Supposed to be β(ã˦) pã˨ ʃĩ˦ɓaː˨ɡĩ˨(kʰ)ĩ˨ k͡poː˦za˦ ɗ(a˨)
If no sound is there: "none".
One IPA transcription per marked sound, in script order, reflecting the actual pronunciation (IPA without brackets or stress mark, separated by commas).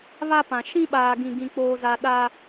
a˦, ɡ, a˦